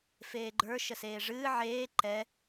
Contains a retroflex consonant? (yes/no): yes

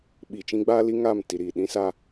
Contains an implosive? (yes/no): yes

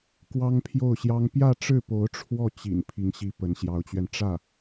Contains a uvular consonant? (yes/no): no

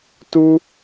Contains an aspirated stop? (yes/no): no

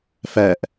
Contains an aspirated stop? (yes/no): no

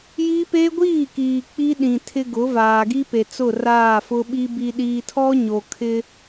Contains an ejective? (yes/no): no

